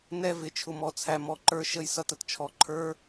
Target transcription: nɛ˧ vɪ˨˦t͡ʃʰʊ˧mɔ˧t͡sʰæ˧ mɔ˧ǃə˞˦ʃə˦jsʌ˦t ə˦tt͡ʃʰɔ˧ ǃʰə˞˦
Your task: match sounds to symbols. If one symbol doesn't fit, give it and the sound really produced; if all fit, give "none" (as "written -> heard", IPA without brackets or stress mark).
none